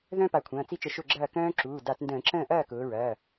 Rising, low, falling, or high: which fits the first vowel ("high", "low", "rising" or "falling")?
high